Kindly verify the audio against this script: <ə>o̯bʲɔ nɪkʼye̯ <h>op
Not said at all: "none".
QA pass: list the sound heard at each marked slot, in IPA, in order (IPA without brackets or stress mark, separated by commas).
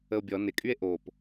ə, ʔ